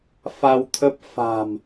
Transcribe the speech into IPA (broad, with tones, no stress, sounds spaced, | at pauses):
f a˧ w t̪ʰ ə˦˥ p̚ f a̤˨˩ m